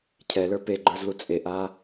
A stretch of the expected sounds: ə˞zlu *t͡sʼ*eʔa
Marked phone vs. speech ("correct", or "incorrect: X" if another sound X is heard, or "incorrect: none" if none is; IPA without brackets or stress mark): correct